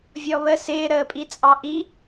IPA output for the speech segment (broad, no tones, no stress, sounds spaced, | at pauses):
vʲ ɔ β ə s ɪː ɾ əː pʼ i t͡sʼ ɑ ʔ i